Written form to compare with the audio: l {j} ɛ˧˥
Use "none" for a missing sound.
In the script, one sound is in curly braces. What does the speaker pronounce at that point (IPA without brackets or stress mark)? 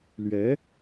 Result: ɥ